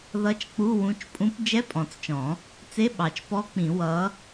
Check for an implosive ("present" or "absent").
present